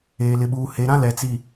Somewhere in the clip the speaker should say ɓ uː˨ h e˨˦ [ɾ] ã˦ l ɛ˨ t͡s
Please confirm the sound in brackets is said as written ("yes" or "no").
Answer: yes